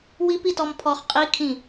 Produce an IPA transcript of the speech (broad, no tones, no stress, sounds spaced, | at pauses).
w i p i t ɔ m pʰ ɔ χ qʼ i kʰ ĩ